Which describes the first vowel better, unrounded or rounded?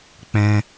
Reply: unrounded